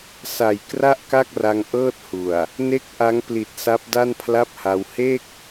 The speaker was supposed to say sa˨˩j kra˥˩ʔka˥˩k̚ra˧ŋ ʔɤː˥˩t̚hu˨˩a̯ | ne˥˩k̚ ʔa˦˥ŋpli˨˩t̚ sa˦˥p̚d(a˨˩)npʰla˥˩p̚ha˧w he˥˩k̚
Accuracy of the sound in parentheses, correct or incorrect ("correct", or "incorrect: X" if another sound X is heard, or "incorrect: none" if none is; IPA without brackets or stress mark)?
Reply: incorrect: a˥˩